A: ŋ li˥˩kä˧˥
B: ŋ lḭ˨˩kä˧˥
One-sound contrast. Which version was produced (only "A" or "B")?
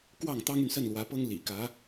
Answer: B